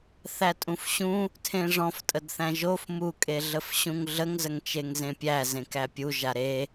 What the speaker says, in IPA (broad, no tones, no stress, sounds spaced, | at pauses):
θ æ tʼ ũ f ɕ ũ | tʰ ẽ ʐ ɔ̃ f tʼ ə d θ æ̃ ʒ o f m u kʼ e ɮ ə f ɕ ũ ŋ ɮ ə ŋ z ə ŋ t͡ʃ e ŋ z ẽ pʲ æ z ẽ k æ pʲ u ʒ a ɾ e